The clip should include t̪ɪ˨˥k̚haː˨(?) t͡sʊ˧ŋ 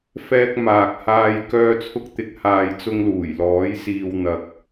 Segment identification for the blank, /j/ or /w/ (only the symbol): j